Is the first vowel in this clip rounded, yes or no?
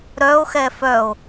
yes